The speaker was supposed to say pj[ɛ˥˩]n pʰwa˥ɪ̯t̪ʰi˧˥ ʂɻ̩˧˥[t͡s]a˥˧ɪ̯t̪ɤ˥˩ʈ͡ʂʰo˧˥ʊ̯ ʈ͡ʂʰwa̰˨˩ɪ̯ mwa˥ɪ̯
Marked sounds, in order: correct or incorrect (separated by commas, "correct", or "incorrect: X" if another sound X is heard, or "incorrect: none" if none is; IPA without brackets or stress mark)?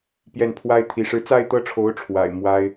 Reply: correct, correct